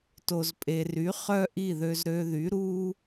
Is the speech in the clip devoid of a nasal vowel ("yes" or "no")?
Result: yes